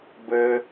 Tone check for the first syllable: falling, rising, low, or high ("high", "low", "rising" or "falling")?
high